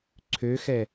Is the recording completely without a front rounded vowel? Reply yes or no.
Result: no